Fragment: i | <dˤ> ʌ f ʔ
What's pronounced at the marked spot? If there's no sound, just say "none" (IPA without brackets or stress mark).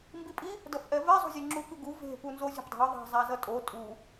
d